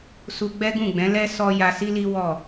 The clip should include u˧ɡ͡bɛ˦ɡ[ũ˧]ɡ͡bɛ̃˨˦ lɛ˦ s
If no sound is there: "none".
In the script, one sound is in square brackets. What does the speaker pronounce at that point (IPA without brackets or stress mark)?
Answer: ũ˦˨